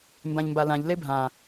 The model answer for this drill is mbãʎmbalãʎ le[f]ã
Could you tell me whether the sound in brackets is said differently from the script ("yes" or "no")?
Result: yes